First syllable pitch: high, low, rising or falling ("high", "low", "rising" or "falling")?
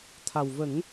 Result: low